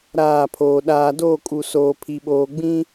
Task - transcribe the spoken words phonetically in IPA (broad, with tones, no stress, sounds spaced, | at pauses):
ɾ aː˦˨ pʰ oː˨ ɗ aː˨ d oː˦˨ kʼ u˨ s oː˨ pʰ i˨ ɓ oː˨ ɡ͡b ĩ˦